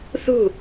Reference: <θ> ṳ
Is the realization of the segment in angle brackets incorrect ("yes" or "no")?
no